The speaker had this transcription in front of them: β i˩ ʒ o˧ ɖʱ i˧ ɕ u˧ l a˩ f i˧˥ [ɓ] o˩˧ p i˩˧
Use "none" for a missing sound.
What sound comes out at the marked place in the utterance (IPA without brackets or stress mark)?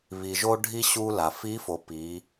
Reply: f